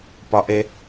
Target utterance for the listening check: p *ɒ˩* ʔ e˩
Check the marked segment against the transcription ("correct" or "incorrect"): correct